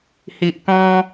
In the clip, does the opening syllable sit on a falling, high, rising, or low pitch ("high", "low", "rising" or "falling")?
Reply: low